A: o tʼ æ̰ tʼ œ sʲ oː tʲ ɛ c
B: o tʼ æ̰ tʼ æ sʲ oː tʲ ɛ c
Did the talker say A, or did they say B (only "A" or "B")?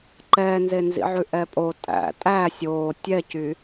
B